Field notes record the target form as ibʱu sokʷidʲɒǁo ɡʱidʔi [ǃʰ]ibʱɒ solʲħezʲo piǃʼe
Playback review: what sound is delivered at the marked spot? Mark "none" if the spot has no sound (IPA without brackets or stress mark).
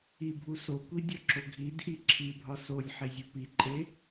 ǁʰ